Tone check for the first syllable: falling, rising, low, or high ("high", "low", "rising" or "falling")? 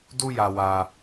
high